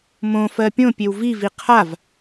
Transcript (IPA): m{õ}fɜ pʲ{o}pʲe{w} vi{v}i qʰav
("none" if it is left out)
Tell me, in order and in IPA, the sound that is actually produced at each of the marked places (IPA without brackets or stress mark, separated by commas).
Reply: õ, õ, w, v